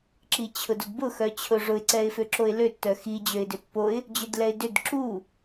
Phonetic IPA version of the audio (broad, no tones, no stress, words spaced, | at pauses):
ǁit͡ɕʰʊdodbʊ xœt͡ɕʰʊʐʊɪ̯ ǀɛɪ̯føǁoɪ̯lø tːœxi d͡ʑøɪ̯dʏpːoɪ̯ | d͡ʑʏdlɛɪ̯dʏd ǁu